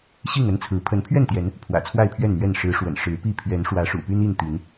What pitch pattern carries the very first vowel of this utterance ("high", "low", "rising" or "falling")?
falling